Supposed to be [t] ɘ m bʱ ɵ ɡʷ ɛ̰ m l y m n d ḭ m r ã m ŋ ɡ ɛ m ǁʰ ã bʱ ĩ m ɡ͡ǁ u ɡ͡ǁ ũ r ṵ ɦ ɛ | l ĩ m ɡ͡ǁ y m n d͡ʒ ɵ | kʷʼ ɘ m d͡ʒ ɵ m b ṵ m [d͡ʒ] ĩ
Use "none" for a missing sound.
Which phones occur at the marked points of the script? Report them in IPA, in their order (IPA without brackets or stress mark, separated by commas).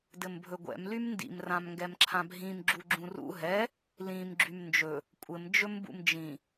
d, d͡ʒ